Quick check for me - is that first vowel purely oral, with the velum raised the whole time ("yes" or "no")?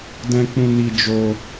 no